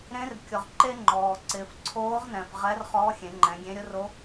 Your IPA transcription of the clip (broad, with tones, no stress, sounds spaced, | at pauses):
ɾ ẽ˧˥ r kʲ ʊ˩ ʁ ǃ e˥ ŋ͡ǃ ɔː˩ ǀ ɪː˩ f ǀʰ oː˧˥ ʁ n ɛ̃˩ f ʁ ɛ˧˥ r χ ɔ˧˥ xʲ ẽ˩˧ ŋ͡ǃ ɛ̃˩˧ ɡʲ ẽ˧˥ ɾʲ ʊ˧˥ r o˧˥